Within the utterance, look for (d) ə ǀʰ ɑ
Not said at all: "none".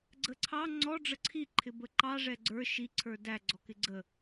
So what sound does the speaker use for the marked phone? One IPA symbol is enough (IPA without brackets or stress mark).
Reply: ɡ͡ǀ